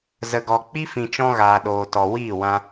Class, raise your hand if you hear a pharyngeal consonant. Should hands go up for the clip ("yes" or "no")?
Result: no